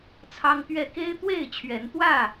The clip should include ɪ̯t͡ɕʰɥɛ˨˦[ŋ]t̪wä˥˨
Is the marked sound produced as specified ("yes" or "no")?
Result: no